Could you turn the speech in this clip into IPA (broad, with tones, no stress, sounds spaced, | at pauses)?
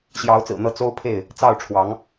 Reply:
ɕ j ɑ˨˦ ʊ̯ t͡s ɹ̩˨˩ n̪ ɤ˨˦ t͡s o˦ ʊ̯ pʰ e˥˨ ɪ̯ | t͡s ɑ˥˨ ʊ̯ ʈ͡ʂʰ w ɑ˨˦ ŋ